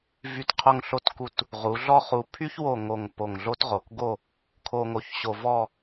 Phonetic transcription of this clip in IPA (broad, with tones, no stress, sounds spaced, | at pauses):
v y˧˩ t qʰ o˧ ŋ ɬ o˧ t k u˧˩ t | ʁ u˩˧ ɮ ɔ˥˧ χ u˧˩ pʰ y˥ ç w o˧˩ ŋ o˧˩ ŋ p o˧˩ ŋ ɮ o˥ t ʁ o˩˧ k ɡ o˥˧ | kʰ o˧ ŋ o˧˩ ç ɕ o˧ v ɔ˥˧